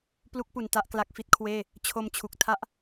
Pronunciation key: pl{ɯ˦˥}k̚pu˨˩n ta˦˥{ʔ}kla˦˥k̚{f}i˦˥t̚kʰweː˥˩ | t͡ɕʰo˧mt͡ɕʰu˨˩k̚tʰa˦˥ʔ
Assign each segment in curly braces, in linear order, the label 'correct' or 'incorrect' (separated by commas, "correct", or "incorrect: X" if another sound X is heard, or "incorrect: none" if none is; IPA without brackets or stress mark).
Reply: incorrect: u˦˥, correct, correct